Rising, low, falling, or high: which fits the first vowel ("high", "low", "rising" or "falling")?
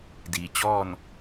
low